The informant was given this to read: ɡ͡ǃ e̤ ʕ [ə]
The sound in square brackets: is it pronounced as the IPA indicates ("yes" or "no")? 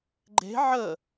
yes